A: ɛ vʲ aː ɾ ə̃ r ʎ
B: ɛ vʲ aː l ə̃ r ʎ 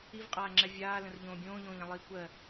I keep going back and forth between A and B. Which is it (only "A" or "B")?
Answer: B